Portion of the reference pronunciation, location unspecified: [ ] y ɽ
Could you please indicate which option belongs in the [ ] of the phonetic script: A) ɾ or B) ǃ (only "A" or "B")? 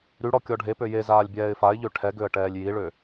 A